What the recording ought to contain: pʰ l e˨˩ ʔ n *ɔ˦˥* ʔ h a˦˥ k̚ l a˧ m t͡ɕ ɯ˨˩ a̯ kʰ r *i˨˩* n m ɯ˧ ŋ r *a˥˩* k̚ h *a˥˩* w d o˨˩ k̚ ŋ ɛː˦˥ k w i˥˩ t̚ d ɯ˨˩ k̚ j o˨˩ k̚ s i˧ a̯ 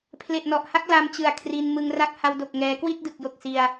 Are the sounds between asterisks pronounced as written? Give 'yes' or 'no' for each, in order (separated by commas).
no, no, yes, no